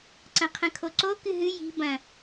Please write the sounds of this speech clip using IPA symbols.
ǀɐ̃qʰɐ̃kʰoǀo kɨɦɨ ji̤ bɐ̃

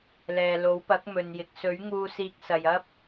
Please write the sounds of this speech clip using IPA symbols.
lɛː˨lo˨˥wpɐ˨˥k̚ mɵ˨njɪ˨k̚ sɵ˨˥ɥ ŋuː˧siː˧k̚sɐ˨j ɐ˥p̚

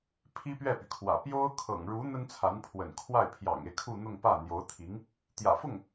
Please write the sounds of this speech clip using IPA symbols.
pʰi˥pɥɛ˥˩py˩kʰwä̰˨˩ pjo˥ʊ̯ kʰɤ̰˨˩ŋɻu˧˥ n̪ə˥nt͡sʰa˧˥n pʰwə̰˨˩nkʰwa˥˩ɪ̯ pʰjɑ̰˨˩ŋe˦ɪ̯ kʰu˥˧n̪ʊ˥˧ŋpä˥˩ n̪jo˧˥ʊ̯t̪ʰi˧˥ŋ | t̪jä̰˨˩fʊ˥˩ŋ

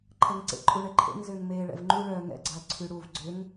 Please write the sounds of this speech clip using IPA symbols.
ǃʰɐŋǀḛǃʼu ɳɛǃʰḛŋ zʏːŋmeːɭɛ̰vŋ͡ǃu ɭœːŋɛ̰ɡ͡ǀɐː ǀʰyɽuv ɡ͡ǀʏŋ

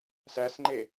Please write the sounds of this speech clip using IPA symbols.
sæsŋ͡ǃe

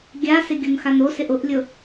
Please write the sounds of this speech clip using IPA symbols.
ɡʲasɪ ɡʲonxanosɪʔ ʊʔlʲʊ

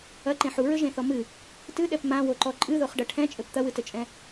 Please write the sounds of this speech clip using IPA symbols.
ɐǃẽ ħuɹɘʒẽθɔ mɨ | tɨɗɛp mãwoǃɔ ǃʼɨðoχɖɐ ʈʰɛ̃t͡ʃʼɘp t̪ɐwɨtɘt͡ʃʼɛ̃

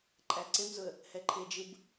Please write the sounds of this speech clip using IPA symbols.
ǃʼæǀemzʊə̯ | hɛǃʰed͡ʒɯb

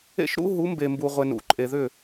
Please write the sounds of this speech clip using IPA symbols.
ḛ˦ʃɾṵ˦ɦu˨˦ mbe˨mbu˨ʁʷe˨n ṵ˨ ǃʼe˨ðʏ˦˨

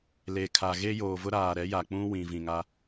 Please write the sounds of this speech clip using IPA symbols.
le˨kʰa˨ɣe˦ joː˨vʊ˦ɾaː˨ ɾɛ˨˦ja˨ k͡pũ˦ wĩ˨vĩ˨ŋa˦

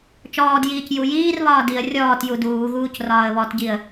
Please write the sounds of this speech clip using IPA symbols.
t͡ʃɔːdjiːc jujiːrβɒː diə̯ rʲɔːtju duːɣuːc rɒːə̯βɔtɟiə̯

